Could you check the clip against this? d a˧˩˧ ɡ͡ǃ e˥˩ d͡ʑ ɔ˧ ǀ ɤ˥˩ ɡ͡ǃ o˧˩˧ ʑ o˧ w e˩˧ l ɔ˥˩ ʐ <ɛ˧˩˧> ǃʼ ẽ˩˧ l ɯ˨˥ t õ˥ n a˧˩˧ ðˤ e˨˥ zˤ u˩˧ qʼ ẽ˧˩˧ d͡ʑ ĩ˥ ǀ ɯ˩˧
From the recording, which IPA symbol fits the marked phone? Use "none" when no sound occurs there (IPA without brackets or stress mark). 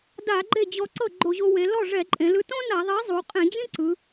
ɛ˧˩˧